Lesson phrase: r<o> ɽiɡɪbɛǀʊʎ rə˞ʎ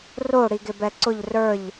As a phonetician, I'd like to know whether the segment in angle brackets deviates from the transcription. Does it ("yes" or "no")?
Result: no